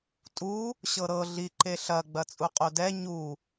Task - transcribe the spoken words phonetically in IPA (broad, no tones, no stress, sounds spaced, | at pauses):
tʼ u | ɕ ɤ ɾ ɤ ɮ i ǃ e ɬ ɐ ɡ͡b ɐ t͡sʼ u qʼ o d ɛ ɲ u